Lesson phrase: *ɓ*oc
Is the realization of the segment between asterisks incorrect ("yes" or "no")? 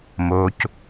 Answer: yes